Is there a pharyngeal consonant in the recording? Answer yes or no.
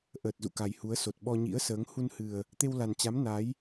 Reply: no